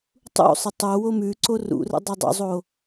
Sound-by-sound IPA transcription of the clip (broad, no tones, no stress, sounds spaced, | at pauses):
tˤ ṵ sˤ ə tˤ o w o m ʉ ǀ o r ṵ r ə̰ dˤ ɵ dˤ ṵ zˤ o